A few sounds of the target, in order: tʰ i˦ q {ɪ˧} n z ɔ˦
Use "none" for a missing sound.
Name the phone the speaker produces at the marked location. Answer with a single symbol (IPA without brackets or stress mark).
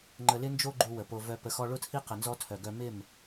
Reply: ə˧